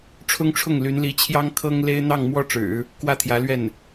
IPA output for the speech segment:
ʈ͡ʂʰ ʊ˥ ŋ ʈ͡ʂʰ ʊ˥˩ ŋ l y˧˥ n l i˧˥ t͡ɕʰ j ɑ˥ ŋ kʰ ɤ˥ ŋ l e˥ ɪ̯ n̪ ɑ˥˩ ŋ m w ɔ˥ ʈ͡ʂ ɻ̩˨˩˦ | k w ä˥˩ t̪ʰ j ä˧˥ l ɥ ɛ˥˩ n

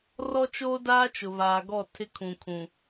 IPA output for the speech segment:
r ɔ˦ t͡ʃ oː˦ d aː˦ t͡ʃ ʊ˨ β aː˨ ɡ ɔ˦˨ tʰ ɪ˦ kʰ ũ˨ kʰ ũ˨

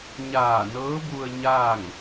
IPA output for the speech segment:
ɲ aː˧˩ n ɤː˧˥ b u˧ ə̯ ɲ aː˥˨ ŋ

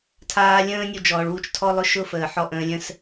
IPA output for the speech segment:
tʰ aː˧ lʲ ə̃ː˦ nʲ u˧ d͡ʒ ɔː˨ ɭ w u˦ t͡ʃ tʰ ɔ˦ lˠ ʊ˦ ʃ ʊ˦ f əː˨ ħ ɔ˧ ʔ ə̃ː˨˦ lʲ ə̃˦ s

